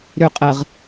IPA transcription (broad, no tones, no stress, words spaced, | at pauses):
ɾʏ qʼəʁ